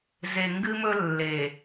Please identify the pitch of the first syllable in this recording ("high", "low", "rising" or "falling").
low